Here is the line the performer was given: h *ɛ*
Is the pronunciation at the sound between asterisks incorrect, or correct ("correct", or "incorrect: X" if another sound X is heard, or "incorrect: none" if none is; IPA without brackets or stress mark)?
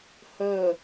incorrect: ɜ